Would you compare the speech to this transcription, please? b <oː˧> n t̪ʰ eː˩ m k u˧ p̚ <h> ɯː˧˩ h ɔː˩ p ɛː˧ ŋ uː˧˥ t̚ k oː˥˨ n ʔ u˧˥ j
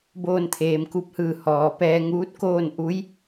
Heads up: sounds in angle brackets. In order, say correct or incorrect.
correct, correct

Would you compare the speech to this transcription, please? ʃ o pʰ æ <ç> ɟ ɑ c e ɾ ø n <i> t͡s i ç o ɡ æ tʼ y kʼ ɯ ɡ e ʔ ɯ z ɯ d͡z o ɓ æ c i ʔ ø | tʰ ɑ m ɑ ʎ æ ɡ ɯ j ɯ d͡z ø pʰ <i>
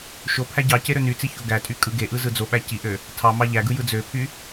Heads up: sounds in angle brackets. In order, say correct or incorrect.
incorrect: none, incorrect: y, incorrect: y

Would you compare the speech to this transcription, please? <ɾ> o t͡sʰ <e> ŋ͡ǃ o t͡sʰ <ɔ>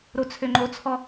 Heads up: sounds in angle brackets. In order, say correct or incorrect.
correct, incorrect: ø, correct

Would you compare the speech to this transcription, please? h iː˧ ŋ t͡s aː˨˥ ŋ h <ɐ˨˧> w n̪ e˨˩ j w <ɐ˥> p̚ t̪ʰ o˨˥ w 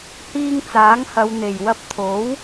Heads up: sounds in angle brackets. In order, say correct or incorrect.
correct, incorrect: ɐ˧

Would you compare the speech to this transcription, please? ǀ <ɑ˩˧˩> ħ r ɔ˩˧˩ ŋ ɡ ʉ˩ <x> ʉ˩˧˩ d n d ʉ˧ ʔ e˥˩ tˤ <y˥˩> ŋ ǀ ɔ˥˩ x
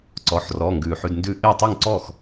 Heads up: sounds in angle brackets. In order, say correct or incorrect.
incorrect: ɔ˩˧˩, incorrect: ħ, correct

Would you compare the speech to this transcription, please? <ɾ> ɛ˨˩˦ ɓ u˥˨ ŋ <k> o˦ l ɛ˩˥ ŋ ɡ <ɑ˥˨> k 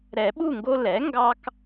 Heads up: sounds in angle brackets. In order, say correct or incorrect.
correct, incorrect: ɡ, incorrect: ɑ˦

